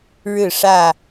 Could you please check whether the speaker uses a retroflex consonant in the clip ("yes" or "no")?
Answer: yes